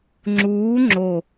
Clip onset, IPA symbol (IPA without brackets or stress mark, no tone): ŋ͡ǁ